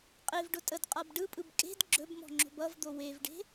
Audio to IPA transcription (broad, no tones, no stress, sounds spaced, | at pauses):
qʼ e v ɖ ʊ tʼ ə d qʼ a b ɖ ɯ pʼ ɯ b kʼ e̤ d ɡ͡ǁ ɵ b m ɔ̤ ŋ͡ǁ o̤ b ʌ v d̪ o w e v ɖ e̤